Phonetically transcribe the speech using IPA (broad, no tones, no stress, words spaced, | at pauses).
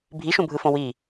bʱiʃũbʱɯfõ wi